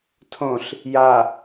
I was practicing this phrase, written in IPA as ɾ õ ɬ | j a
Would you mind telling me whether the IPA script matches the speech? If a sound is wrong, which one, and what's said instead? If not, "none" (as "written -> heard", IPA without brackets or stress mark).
ɾ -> tʰ